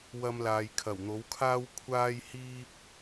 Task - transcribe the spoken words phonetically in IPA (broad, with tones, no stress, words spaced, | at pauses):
wɐ˧mlaː˨j kʰɐ˨˩wn̪o˨˥wkʰaː˥w kʷʰaː˥jhiː˥p̚